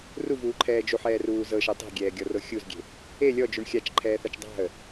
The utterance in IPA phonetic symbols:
ruvuːǃʰɛː d͡ʒuħɛːruː zɤʃɤ tˤe̤ɡʲɛːɡʲɔro xʲuzɡʲe̤ | e lʲɔd͡ʒuɳ xʲat͡ʃǃʰɛːθat͡ʃ dˤa̤ə̯

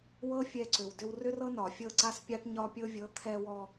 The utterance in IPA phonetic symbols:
wɤ˦fʲɛ˧ ǀʏ˨wdʏ˧w rʏ˦rɤ˦nɒ˨fʲɤ˦˨ ǀa˧spʲa˧ʈ ɲɒ˧pʲɤ˧vʲɤ˨˦ t̪ʰɛ˧wɔ˧

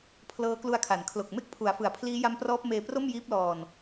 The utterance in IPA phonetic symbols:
pʰlɤː˦˥klu˧a̯kʰa˨˩n kʰlo˨˩k̚me˥˩k̚ pʰu˩˦a̯fɯ˨˩a̯ pʰliː˦˥ja˦˥mprɔː˦˥p̚meː˧ pro˥˩mjiː˦˥p̚lɔː˧n

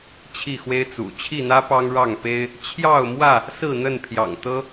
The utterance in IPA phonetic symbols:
t͡ɕʰi˥˨xwe˦ɪ̯t͡sṵ˨˩ t͡ɕʰi˥˨n̪ä˦ pɑ˦ŋɻɑ˥˨ŋpe˦ɪ̯ | t͡ɕʰjɑ˥˨ʊ̯mwä˥˨ | sɹ̩˥˨n̪ə˥˨npʰjɑ̰˨˩ŋt̪ɤ˦

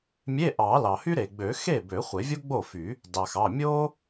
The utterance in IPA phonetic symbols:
mʲe˧˥˧ʔɑ˨˩˦ lɑ˩hy˥ɾe˩ɡ͡bø˨˩˦ xe˥˩bø˨˩˦ χʷe˨˩˦vʲo˥ɡ͡bo˥˩fy˨˩˦ | dɑ˩xɑ˩˧˩ mʲo˥

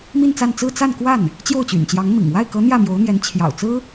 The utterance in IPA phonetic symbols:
mi˥˧nt͡sa˥˧n t͡sɹ̩˥˧ t͡sa˥˧nkwa˥˩n | t͡ɕjo˥˩ʊ̯t͡ɕy̰˨˩nt͡ɕjɑ˧˥ŋmḭ˨˩ŋ wa˥˩ɪ̯kɤ˧˥ n̪jä˥˩mjo˧˥ʊ̯n̪jɛ˧˥n t͡ɕʰjɑ̰˨˩ʊ̯t͡sɹ̩˥

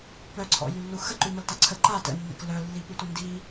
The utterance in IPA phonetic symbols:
pœǀʰɔ̰jylːu xə ǃyməlta ǀʰə ǃa tə̰nːə̰k lœlːiputʷə ndi

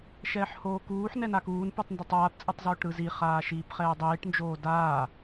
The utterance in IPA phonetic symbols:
ʃɛːħhoːkuːħ nɛnakuːn pɯtˤndatˤaːp t͡sʼɯtˤzoːʈɾɯzi χaːʃiːpχɛːdˤiːʈ nd͡ʒoːdaː

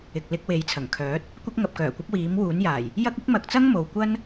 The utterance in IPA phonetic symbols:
ɪ˨k̚lɪ˧k̚ we˨˧jt͡sʰɐ˨˩ŋkʰœː˨˥t̚ | kʷɐ˥k̚ ŋɐ˨p̚kœː˨˩kʷɐ˧p̚ wiː˨˥mwuː˨˥njaː˨˩j | jɐ˥k̚ɪ˥k̚mɐ˧k̚t͡sɐ˥ŋ mo˨wkʷɐ˥n

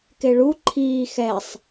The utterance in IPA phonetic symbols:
keɭu ǃʰiː xɛsˤ

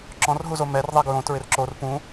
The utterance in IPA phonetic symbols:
ǁɔ̃rɦuzo mɛr ðˤeɡɹõ tɹɪrǁor pũ

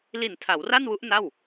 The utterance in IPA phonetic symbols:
li˨˩n tʰa˩˦wra˥˩nwu˦˥ʔ na˥˩w

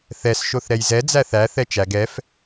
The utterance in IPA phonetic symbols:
θɛs ʃoθɾɛjzɛ d͡zæθæ θɛt͡ʃæɡ ɛf

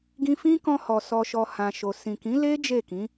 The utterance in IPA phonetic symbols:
ɡĩ˧fĩ˦kɔ̃˧hɔ˨ sɔ˨ʃɔ˨ hã˨ʃo˨ sĩ˨kĩ˨˦le˦ d͡ʒe˦˨kĩ˨˦

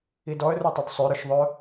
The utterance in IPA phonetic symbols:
idɔə̯rutˤyd sˤøɾœʃðˤœ

